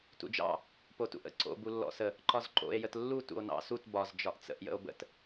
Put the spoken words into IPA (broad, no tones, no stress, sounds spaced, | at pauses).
t ṵ d͡ʒ ɑ̰ | p o t ṵ ʔ ə̰ ǀ o̰ b u lː ɔ̰ s ə | ǃ ɒ z ǃ o̰ e̯ j ə t lː u t ṵ o̯ n ɑ̰ s u t b ɒ z d͡ʒ ɒ ʔ t͡s ə̰ ʔ j ə̰ o̯ b ə̰ t